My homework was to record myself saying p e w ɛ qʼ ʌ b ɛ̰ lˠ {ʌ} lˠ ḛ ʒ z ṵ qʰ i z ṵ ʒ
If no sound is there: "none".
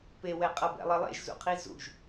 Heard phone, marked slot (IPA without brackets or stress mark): ʌ